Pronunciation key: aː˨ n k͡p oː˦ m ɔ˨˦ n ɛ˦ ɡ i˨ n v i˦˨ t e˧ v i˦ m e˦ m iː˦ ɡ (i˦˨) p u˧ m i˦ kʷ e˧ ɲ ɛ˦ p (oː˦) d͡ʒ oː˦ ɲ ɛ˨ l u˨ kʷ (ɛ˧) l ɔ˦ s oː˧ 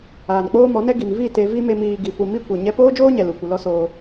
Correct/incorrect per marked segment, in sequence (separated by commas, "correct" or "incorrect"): incorrect, correct, incorrect